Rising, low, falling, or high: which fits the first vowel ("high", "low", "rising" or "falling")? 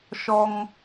high